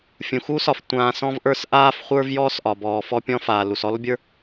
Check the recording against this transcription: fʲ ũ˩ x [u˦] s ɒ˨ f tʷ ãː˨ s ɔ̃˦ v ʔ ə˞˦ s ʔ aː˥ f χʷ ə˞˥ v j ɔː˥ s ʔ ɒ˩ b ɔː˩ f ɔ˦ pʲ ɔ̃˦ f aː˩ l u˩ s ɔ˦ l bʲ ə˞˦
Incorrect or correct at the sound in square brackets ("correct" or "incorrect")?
correct